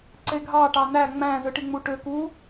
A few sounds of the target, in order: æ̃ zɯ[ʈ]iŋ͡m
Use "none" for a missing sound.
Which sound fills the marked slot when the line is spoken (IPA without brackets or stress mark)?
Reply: ʈ